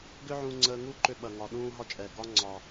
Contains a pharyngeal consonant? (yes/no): yes